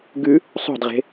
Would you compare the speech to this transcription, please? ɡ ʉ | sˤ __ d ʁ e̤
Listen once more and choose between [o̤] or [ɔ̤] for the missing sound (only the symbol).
o̤